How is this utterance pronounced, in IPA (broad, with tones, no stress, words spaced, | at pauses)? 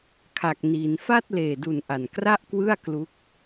kʰa˨˩k̚niː˩˦n fa˥˩t̚leː˨˩du˨˩n ʔa˨˩nkra˥˩ʔkwɯ˥˩a̯ klu˦˥k̚